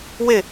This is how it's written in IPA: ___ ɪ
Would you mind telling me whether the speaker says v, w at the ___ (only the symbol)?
w